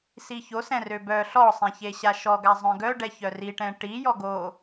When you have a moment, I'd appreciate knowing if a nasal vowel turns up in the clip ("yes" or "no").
yes